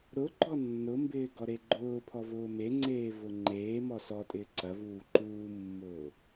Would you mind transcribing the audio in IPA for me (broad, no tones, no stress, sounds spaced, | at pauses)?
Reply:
ɾ ʊ ɡ͡ǃ ɔ nː ʊ m b ɪː ɡ ɔ ɾ e ɡ͡ǃ ʊː pʰ ɔ v ʊː m e ŋ͡ǀ eː v ʊ ŋ͡ǃ eː m ɔ s ɔ tʼ ɪː ǀ ɐ v uː ǃ uː mː ʊː